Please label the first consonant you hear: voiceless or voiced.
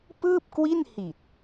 voiceless